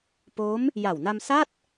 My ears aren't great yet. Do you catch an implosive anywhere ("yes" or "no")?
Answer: no